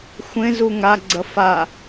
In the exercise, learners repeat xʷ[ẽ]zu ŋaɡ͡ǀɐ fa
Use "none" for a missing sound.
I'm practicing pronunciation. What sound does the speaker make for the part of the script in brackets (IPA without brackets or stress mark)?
ẽ